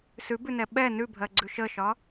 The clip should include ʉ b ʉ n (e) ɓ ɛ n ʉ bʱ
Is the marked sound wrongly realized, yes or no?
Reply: yes